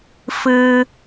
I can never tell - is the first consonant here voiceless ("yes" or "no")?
yes